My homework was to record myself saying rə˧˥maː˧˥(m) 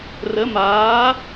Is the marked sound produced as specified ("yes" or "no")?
no